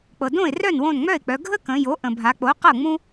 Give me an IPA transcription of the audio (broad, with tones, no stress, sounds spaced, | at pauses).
k͡p ɤ˩ d õ˥˩ ɪ̯ r œ˥˩ n w õ˧˩ n ŋ͡m œ˥˩ ɪ̯ k͡p œ˩˧ ɡʱ ə˥ k ə̃˩˧ j o˩˥ ʔ ə̃˩ bʱ a˩˧ k͡p o˩˥ q ɤ˥˩ ŋ͡m ũ˥